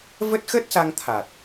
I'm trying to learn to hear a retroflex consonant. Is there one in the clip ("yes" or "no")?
no